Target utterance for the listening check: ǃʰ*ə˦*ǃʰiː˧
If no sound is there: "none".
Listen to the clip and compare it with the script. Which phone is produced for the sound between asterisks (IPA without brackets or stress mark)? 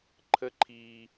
ə˦